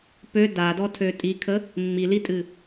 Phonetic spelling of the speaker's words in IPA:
p ø d a d ɔ tʰ ø tʼ i kʰ ə | mː i l i tʼ ɨ

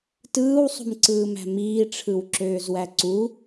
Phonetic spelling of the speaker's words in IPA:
t ɯː w sˤ ṳ m ǀ ɯː m æ̤ m iː ʈ͡ʂʰ ɯ w ǁ øː z w æ ǀ u

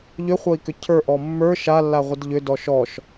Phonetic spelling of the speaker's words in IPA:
ʎ ʏ χʷ ʌ i̯ k ʏ cʰ ə˞ ʔ ɔ mː ə˞ ʃ a lː a ʁʷ ə d ʎ ʏ d ɔ ʃ ɔ ʃ

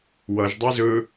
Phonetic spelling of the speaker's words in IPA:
w ʌ ʒ dˤ e z ɵ

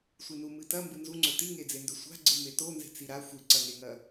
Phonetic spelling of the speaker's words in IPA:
sʷ ɨ n u m ɨ t ɐ m b ɨ n z u ŋ͡ǀ ɵ t i ŋ e d͡z e n d ɵ sʷ a̤ ɡ͡ǀ ɨ m e t o n z e̤ t͡s i ɾ a xʷ ɨ ǀ ɐ ŋ e ŋ ɐ

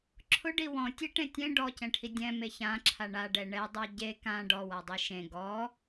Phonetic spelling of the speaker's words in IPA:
ǁʰ ʊ ɖ i w ɔ̃ tʲ e ʈ ẽ tʲ ẽ ɖ ɔ c ɛ̃ ʈʰ i dʲ ɛ̃ m e ç ã ǁʰ a ɳ a ɖ ɛ ɳ ɛ dˤ a ɟ e k ã ɖ ɔ w a dˤ i ʃ ẽ ɡ ɔ

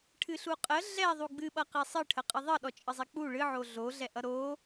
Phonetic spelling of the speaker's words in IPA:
ʈʰ ɨ ɬ u qʼ ə ɮ ɛ ðˤ u ɡ͡b ɨ ɓ ʌ q e sˤ ɨ ʈʰ ə qʼ ɨ ðˤ ə ɗ ɔ t͡ʃʼ ɨ zˤ ɛ k͡p u ɭ ɨ ʕ o ɮ o ɮ ɛ ʔ ʌ ɾ o

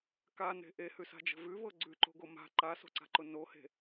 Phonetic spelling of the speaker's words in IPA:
k a n e̤ ʔ e h ʉ s a̤ d͡ʒ ə̤ v ʉ v ɤ ɡ͡ǀ ʉ ǃ o̤ ɡ o m a̤ ǃ a s o̤ ǀ a̤ ǃ ʊ n o h e̤

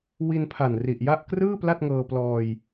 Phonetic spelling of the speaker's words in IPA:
w i˧ n pʰ a˨˩ n r i˨˩ ʔ j a˥˩ ʔ k r ɯː˥˩ p l a˥˩ t̚ ŋ ɤː˧ p l ɔː˧ j

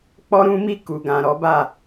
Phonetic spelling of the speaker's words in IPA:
k͡p ɔ˦ ɾ ũ˦ m i˦˨ k u˨ ɡ ã˨ ɾ ɔ˨˦ b a˦˨

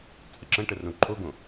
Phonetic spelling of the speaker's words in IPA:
t͡sʼ ə ǁ ɐ̃ ʈ ə r õ ǃʰ o ɡ õ

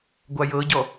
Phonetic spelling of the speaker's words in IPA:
ɡʷ a j ɤ ɟ ɔ

